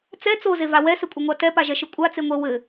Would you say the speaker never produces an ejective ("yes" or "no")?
no